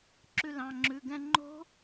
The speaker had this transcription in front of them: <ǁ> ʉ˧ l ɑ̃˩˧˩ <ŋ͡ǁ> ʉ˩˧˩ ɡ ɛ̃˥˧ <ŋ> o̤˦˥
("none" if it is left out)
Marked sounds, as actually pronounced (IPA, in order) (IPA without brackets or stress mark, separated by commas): ǁ, ŋ͡ǁ, ŋ͡ǃ